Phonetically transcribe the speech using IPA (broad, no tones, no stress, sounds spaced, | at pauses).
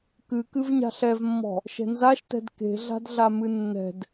k ɨ k ɨ v ɲ a̤ ɬ ɛ v mː ɔ̤ | ʃ ɛ̤ n z a ʃ t ɛ̤ d k e̤ ɮ a̤ d ɮ a m ɨ nː ɛ̤ d